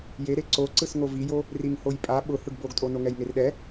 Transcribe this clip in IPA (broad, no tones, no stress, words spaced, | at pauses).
jeɾe ǀoǀɯs ŋovijo | riŋhojpʼa ɓʊhɯɡboɡtʼo noŋɛjŋerɗɛ